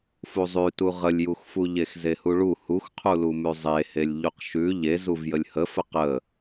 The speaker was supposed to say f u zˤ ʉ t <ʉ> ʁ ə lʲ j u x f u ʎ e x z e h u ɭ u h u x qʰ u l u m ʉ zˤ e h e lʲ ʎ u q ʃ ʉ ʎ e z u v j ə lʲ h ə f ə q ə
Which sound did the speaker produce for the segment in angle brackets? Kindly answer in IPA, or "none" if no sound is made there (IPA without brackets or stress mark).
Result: u